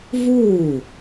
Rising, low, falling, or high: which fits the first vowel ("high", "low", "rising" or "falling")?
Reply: falling